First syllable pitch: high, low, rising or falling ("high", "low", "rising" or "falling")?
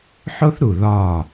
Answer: high